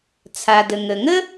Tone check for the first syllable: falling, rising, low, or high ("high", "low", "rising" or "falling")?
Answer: low